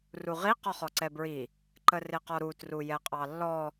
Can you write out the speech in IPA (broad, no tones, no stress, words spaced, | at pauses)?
ruʁi qɔχɔǀɛbɹi | ǃərɪqɔɾu trujɛqʼɑlːɔ